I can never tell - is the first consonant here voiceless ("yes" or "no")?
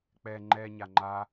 yes